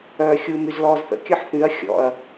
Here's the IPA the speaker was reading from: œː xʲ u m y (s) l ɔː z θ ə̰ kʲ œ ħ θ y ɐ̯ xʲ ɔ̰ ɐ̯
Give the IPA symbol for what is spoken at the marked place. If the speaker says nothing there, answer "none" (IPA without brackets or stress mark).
z